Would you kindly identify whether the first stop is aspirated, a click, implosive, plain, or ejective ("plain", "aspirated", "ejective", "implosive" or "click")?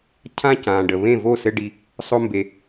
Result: aspirated